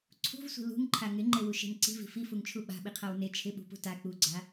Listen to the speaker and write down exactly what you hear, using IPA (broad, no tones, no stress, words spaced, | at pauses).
ǀʰṳvsʷi̤ lṳŋǃʰa ŋɪŋ͡ǃewuʃe̤n ǀi̤vi̤ fifuŋt͡ʃʰu ɓa̤ɓiqʰaw ne t͡ʃʰɪɓṳpṳ ta k͡puɡ͡ǀa